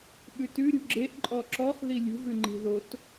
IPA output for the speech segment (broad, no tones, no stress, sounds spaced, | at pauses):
ɓ ʉ t ʉ ɾʲ ṳ ɡ͡ǁ e ʔ ǃʼ ɔ ǁ ɔ χ ð i lʲ ṳ v ʉ ŋ͡ǃ i̤ ð o t